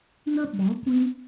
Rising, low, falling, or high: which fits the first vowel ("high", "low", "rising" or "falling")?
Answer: high